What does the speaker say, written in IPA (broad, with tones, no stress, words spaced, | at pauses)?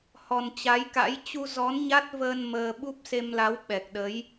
hɔ˨˩nt͡ɕa˨˦jka̰˧˥j t͡ɕu˧zɔ˨˦nɲa˦˥t̚vəː˧n məː˧ ɓu˦˥p̚se˧mla˨˦w ɓɛ˨˩k̚ɗə˨˦j